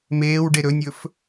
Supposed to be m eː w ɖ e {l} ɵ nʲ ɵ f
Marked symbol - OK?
no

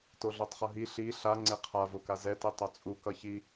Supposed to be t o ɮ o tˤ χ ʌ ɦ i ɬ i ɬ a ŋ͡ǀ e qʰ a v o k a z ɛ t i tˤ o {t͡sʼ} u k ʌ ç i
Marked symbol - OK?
yes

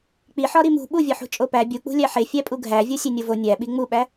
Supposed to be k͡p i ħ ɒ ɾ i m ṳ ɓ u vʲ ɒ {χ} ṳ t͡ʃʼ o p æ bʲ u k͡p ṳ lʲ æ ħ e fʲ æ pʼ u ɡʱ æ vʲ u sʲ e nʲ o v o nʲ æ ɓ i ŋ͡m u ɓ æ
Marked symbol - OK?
no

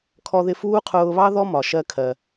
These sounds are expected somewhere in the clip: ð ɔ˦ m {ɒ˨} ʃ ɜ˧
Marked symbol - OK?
yes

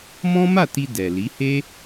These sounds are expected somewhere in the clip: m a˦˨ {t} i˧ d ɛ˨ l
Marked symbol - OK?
yes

